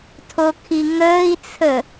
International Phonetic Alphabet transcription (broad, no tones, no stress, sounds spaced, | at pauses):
tʰ o kʰ i ŋ əː i̯ t͡sʰ ə